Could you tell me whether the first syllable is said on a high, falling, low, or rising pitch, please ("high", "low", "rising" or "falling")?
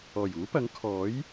low